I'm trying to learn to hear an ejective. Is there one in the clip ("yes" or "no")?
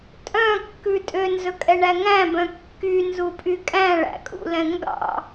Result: yes